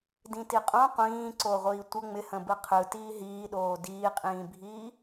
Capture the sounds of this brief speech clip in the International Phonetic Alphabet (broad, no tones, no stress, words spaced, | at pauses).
dĩtiqʼõ qʷĩːǀoʁʷiː tʷə ŋ͡mɪhə̃ bɯqʰɯ tiːɦiːɗoː diːqʼĩːbʱiː